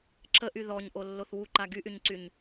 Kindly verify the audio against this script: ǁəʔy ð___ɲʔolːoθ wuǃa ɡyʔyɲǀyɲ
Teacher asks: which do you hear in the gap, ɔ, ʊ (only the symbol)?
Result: ɔ